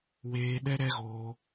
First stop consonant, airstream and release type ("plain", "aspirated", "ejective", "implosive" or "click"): implosive